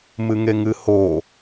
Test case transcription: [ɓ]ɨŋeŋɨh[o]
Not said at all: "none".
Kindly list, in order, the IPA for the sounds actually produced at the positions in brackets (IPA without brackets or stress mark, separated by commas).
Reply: m, o